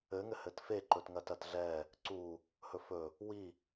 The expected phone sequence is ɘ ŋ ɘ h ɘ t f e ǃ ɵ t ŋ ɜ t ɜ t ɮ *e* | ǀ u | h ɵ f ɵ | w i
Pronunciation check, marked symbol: incorrect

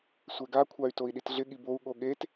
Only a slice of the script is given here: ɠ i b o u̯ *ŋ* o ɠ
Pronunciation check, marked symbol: incorrect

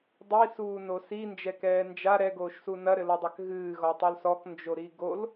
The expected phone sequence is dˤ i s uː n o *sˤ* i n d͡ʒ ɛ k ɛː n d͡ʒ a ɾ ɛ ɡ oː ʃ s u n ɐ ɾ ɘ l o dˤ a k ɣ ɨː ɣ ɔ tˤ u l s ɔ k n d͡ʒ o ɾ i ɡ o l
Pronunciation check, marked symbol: incorrect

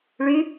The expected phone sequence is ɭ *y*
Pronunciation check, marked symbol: correct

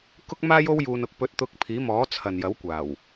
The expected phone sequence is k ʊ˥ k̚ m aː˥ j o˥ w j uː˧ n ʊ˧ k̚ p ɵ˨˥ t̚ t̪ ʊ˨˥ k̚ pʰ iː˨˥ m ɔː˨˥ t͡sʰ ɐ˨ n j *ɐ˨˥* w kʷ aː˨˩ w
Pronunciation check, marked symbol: correct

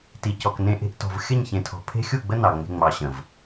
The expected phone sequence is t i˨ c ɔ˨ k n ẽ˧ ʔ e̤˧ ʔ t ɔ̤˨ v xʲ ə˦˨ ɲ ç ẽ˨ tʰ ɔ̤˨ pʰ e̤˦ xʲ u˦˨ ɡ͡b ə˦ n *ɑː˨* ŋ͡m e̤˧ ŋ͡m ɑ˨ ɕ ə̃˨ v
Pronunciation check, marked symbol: incorrect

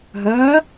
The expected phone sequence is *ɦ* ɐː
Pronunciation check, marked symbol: correct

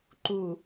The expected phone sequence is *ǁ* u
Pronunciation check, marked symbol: incorrect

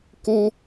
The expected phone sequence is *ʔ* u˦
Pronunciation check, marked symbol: incorrect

